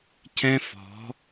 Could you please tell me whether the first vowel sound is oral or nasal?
nasal